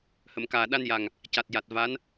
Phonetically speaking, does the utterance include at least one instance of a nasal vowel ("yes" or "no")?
no